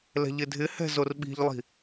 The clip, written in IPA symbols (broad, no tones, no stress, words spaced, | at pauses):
lɛ̤ʎɪdʱɪhɛ̤ zorɓi̤ʎlˠi̤